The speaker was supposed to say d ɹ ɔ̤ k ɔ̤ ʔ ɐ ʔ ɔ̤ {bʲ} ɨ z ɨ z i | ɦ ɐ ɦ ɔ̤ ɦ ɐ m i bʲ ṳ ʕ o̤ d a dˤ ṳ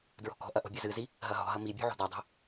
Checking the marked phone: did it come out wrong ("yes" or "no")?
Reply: no